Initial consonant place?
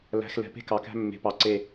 alveolar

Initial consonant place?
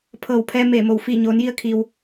labial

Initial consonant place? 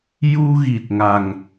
palatal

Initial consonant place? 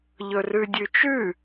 palatal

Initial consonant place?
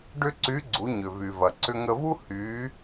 retroflex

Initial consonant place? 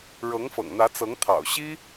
retroflex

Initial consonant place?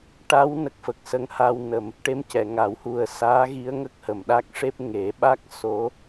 retroflex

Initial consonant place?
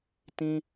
alveolar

